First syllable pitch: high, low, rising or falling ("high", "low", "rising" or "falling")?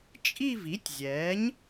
falling